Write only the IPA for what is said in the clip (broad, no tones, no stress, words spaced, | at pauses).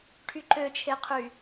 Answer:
ʈʰyǃøt͡ʃʰeqʰy